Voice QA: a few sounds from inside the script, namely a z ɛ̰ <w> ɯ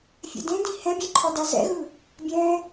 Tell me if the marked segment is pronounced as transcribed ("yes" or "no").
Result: no